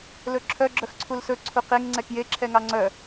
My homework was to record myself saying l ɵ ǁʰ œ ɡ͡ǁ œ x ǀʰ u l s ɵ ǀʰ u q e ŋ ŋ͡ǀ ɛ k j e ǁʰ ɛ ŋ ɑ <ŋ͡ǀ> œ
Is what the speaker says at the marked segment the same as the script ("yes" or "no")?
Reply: yes